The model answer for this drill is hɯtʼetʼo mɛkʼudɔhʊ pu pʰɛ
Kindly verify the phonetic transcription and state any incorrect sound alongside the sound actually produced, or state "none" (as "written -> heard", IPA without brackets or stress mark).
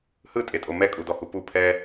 ʊ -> u